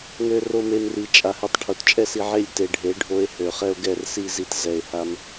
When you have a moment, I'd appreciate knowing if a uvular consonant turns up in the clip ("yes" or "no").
yes